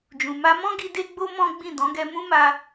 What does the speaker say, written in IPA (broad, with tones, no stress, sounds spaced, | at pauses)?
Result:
d͡ʒ ũ˨ m a˧ m ɔ̃˦ ɡ i˧ d e˦ ɡ͡b o˦ m ɔ̃˦ ɡ͡b ĩ˦˨ d ɔ̃˨˦ ɡ ɛ˧ m ũ˦ m a˧